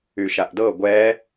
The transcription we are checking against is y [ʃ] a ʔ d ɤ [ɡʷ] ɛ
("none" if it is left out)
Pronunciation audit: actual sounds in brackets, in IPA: ʃ, ɡʷ

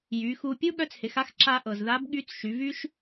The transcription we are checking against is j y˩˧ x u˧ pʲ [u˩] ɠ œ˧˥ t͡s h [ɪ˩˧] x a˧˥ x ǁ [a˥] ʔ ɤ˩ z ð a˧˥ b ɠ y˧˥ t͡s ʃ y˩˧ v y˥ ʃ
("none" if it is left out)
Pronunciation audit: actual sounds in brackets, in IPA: u˥, ɪ˩˧, a˧

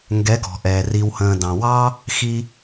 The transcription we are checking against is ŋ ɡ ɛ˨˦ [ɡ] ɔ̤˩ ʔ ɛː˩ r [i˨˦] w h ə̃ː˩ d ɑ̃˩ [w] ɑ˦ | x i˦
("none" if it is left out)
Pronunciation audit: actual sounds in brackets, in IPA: ɡ, i˩, w

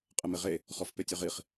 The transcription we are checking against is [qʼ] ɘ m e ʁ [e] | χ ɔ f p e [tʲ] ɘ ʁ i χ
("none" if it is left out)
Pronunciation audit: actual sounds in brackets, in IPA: qʼ, e, tʲ

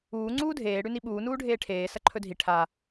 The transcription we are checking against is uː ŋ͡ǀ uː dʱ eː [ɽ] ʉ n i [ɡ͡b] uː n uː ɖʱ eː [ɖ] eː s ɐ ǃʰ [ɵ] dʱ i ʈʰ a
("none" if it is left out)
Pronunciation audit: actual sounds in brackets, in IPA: ɽ, ɓ, ʈʰ, ɵ

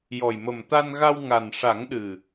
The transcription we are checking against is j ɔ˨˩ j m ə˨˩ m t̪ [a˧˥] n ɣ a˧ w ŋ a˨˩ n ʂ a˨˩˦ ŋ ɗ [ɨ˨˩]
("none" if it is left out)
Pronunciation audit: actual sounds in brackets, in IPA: a˧, ɨ˨˩

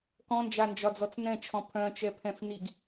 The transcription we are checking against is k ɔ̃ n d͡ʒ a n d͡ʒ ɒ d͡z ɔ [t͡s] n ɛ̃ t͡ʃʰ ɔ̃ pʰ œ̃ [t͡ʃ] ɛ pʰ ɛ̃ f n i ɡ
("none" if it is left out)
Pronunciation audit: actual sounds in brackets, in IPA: t͡s, t͡ʃ

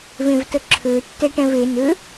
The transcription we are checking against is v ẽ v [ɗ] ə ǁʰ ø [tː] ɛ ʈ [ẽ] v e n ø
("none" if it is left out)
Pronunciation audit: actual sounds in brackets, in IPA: t, tː, ɛ̃

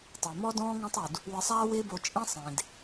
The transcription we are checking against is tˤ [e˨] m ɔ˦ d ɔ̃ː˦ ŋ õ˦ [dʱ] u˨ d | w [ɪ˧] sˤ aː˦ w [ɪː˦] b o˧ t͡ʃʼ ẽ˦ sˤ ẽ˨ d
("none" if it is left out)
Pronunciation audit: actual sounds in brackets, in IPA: e˨, tˤ, ɪ˧, ɪː˦

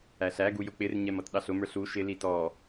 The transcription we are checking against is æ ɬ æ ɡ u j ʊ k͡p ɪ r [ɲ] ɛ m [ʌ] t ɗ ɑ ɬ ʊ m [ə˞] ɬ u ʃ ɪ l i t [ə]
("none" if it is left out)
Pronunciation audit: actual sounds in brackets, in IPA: ɲ, ʌ, ə˞, ɔ

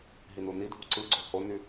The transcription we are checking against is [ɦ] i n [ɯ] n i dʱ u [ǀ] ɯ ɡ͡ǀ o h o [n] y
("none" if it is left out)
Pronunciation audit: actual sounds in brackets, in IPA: ɦ, u, ǀ, n

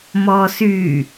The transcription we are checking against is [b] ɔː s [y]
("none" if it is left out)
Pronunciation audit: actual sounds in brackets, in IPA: m, y

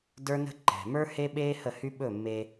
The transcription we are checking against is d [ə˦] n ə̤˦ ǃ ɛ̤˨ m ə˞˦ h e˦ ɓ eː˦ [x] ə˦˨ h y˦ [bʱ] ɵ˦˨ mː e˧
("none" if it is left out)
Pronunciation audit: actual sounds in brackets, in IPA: ə˞˦, h, ɓ

